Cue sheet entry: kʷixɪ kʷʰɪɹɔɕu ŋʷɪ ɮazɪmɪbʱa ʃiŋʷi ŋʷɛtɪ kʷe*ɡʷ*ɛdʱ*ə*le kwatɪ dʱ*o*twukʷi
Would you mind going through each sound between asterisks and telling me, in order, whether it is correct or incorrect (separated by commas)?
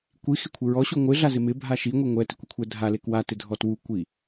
incorrect, incorrect, incorrect